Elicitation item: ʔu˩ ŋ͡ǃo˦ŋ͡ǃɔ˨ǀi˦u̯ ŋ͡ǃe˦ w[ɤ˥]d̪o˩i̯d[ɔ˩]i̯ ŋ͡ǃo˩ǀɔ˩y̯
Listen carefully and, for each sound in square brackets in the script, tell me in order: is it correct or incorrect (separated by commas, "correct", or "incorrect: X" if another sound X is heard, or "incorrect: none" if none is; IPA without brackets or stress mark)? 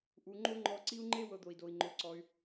incorrect: ɤ˨, incorrect: o˩